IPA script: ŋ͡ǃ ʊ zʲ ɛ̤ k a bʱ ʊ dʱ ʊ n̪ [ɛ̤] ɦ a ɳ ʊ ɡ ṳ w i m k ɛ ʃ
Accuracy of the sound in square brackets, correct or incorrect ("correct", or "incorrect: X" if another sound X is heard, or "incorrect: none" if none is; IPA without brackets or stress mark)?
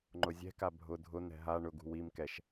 correct